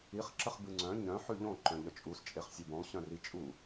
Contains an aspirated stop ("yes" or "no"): no